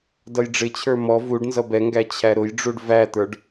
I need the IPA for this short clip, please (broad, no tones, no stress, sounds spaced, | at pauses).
d ʌ j ɖ͡ʐ ɪ t͡ɕʰ ə˞ m ɔ v u ɖ n z ʌ b ɛ ŋ ɡ æ t͡ɕʰ æ ɾ ʊ j ɖ͡ʐ u ɖ v æ t̪ ə˞ ɖ